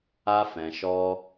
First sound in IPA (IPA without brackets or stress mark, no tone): a